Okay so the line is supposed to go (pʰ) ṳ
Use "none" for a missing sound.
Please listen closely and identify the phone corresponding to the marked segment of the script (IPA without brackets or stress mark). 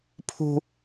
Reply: pʰ